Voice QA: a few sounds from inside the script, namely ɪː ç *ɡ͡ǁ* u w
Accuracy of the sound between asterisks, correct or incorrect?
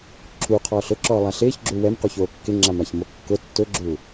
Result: correct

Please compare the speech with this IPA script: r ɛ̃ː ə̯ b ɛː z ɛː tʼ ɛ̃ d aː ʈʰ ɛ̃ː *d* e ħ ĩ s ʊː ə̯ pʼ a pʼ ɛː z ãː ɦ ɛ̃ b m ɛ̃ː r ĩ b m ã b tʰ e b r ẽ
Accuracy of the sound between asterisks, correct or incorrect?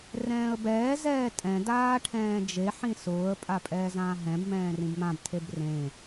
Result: incorrect: d͡ʒ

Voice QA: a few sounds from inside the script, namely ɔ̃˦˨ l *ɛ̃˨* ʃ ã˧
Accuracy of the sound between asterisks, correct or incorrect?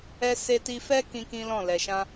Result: incorrect: ɛ˨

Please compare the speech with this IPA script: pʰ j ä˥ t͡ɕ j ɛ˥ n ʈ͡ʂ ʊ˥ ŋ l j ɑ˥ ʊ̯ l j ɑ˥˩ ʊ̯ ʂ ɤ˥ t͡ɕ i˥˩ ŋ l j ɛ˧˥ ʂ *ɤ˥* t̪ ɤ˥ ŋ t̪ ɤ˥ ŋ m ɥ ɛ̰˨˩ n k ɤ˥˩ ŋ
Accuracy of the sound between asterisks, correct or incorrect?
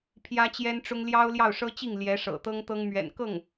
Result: incorrect: ɤ̰˨˩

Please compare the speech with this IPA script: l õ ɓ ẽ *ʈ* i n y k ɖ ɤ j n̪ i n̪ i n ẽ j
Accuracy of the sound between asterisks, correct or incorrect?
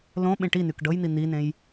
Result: correct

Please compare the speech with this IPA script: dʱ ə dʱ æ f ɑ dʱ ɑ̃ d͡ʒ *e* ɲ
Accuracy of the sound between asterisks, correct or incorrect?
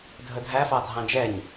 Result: incorrect: ɛ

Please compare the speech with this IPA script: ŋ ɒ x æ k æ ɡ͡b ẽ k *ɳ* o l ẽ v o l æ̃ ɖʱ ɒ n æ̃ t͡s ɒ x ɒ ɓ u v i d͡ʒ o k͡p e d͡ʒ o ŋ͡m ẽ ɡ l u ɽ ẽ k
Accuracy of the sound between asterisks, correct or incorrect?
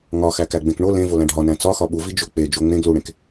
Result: correct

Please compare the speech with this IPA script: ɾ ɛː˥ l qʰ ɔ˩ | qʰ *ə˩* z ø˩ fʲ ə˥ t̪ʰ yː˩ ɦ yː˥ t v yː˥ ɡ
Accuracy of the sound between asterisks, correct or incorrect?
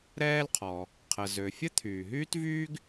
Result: correct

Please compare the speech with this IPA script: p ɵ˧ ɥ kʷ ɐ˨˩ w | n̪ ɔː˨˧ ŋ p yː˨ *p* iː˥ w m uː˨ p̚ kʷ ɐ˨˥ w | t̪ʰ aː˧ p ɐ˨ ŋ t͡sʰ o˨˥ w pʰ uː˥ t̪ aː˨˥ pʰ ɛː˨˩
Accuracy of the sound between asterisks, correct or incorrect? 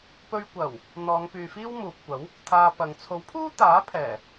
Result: incorrect: f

